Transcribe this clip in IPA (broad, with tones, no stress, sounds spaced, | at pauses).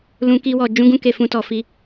l ũ˦ k i˦ w ɔ˧ d͡ʒ ũ˦ ɡ ũ˦ k e˧ f ũ˧ t ɔ˨ f i˧